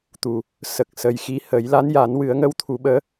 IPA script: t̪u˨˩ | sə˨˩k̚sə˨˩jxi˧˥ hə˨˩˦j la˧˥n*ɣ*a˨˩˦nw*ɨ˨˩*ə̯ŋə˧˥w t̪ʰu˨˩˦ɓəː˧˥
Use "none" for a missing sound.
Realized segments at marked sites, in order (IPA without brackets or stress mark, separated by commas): j, ɨ˨˩˦